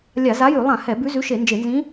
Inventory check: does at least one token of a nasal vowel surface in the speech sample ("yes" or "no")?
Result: yes